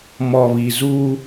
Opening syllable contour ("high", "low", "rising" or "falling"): low